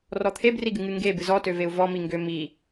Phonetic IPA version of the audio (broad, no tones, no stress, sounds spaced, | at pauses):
r ɔ t̪ʰ e b r i ɡ ɨ ŋ ɨ ŋ ɡ e b ɨ z ɔ t ø v e u̯ v ɔ m i ŋ ɡ ø m i